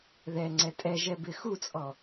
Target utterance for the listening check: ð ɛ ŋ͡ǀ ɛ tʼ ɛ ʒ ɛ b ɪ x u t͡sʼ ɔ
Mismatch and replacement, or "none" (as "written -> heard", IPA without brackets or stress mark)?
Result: none